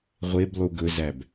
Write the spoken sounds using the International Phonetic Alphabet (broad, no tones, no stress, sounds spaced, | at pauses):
ʁʷ e b lˠ u ɡ ɵ z æ b